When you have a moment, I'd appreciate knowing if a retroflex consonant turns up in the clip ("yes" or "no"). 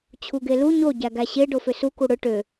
yes